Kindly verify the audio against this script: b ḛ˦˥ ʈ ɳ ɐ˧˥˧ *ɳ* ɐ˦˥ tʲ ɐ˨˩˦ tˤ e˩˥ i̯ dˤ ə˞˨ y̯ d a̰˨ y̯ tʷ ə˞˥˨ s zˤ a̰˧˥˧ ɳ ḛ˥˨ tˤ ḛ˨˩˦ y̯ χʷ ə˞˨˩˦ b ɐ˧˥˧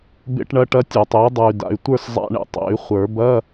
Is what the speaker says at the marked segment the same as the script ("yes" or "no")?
no